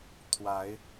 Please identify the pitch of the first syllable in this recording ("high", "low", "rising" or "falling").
rising